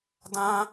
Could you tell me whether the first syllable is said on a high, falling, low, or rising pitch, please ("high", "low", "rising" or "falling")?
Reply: high